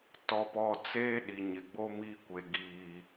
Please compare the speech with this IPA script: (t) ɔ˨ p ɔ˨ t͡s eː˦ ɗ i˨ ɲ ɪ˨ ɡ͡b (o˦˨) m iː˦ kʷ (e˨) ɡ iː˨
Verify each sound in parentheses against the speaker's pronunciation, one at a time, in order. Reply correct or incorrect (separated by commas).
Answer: correct, incorrect, correct